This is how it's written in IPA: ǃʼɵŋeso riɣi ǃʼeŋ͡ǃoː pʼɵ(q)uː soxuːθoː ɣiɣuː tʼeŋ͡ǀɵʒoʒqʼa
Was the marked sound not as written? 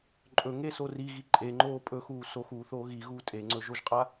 yes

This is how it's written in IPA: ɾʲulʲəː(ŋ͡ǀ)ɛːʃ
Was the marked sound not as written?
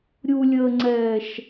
no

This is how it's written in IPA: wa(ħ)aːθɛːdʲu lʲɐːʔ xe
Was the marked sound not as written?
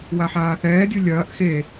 no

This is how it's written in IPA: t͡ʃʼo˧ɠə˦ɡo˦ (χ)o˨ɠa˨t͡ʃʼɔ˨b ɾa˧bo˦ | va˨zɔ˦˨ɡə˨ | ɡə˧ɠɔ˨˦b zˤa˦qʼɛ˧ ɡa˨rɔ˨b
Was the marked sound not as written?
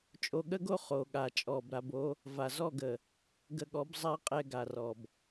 no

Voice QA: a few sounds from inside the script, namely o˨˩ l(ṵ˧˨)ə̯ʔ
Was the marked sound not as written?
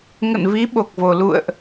no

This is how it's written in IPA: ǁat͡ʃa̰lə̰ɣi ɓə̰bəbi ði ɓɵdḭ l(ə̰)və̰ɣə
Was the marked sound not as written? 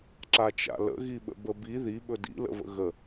no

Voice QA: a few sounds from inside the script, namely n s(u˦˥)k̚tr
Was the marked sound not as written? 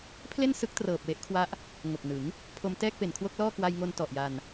yes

